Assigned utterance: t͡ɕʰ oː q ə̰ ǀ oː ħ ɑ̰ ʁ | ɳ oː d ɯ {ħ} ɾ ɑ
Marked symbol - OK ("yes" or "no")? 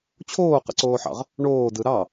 no